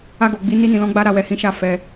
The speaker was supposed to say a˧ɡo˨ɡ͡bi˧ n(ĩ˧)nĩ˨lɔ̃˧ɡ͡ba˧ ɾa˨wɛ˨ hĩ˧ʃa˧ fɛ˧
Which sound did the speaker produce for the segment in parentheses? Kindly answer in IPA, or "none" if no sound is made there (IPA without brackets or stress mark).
i˧